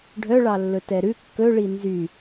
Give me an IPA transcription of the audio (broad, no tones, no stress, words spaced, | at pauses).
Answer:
ɖʱœɭɑlːɵ tɛɾʉ kːɵɭi nzy